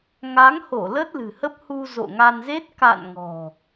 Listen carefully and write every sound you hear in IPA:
ŋ a˨˦ ŋ h o˧˩ l ə˦˥ t̚ l ɨ̤˨˩ h ə˦˥ p̚ h u˧ z o̰˧˨ ŋ a˧ n z e˦˥ t̚ k a̰˧˨ n ŋ ɔ̤˨˩

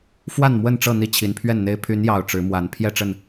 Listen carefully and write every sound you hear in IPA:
f w a˥˨ n m w ə˥˨ n ʈ͡ʂ ɤ˥˨ n̪ i˥˨ t͡ɕʰ i˨˦ n pʰ ɥ ɛ˥˨ n n̪ e˦ ɪ̯ pʰ y˨˦ n j ɑ˨˩ ʊ̯ ʈ͡ʂ ɻ̩˨˦ m w a˨˦ n pʰ j ɛ˥˨ ʈ͡ʂ ə˥˨ n

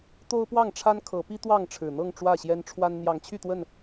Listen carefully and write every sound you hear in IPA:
t̪ o˦ ʊ̯ p w ɑ˥˨ ŋ ʈ͡ʂʰ a˦ n kʰ ɤ˨˦ p i˦ t̪ w ɑ˥˨ ŋ ʈ͡ʂʰ ɻ̩˨˩ n̪ ɤ˥˨ ŋ ʈ͡ʂ w ä˥˨ ɕ j ɛ˦ n ʈ͡ʂʰ w a˦ n n̪ j ɑ˨˦ ŋ t͡ɕʰ y˥˨ t̪ w ə˥˨ n

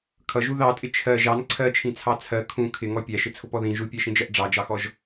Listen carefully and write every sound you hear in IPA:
kʰ ʌ ʒ u ð ɑ tʼ ɪ t͡ʃʰ ɜ ʒ ɑ n ǀʰ ɜ t͡ʃʰ ĩ t͡sʰ ɑ t͡sʰ ɜ kʰ ũ kʰ ɪ ŋ ɔ pʲ æ ʃ ɪ t͡sʰ ʊ p ɔ ð ĩ ʒ u pʲ æ ʃ ĩ d͡ʒ ɜ ʔ ɖ͡ʐ ɑ d͡ʒ ɑ x ɔ ʒ

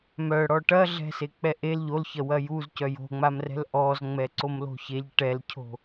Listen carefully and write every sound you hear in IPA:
m œ ɽ ɔ ʈ ɐ ɮ ɛ̤ s e k͡p ɛ ʔ e l ʎ o l ç ɐ w ɐ j u z c œ j o̤ ŋ͡m a m r ɛ̤ l ʔ ɔ z ŋ͡m ɛ ǀ o m l o̤ ç e ʎ ʈ ɛ l cʰ o̤

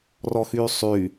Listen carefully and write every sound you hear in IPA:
r ɔ x yː sˤ y

